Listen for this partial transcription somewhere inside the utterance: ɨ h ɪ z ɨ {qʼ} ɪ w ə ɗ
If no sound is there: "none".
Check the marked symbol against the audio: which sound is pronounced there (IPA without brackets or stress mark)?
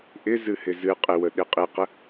qʼ